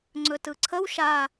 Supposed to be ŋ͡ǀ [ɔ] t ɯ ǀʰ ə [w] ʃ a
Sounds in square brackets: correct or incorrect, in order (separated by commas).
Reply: incorrect, correct